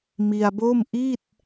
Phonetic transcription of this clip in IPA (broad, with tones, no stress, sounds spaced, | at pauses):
m i˧ a̯ b o˥˩ m ʔ i˥˩ t̚